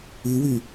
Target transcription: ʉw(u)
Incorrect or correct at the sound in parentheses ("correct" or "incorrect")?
incorrect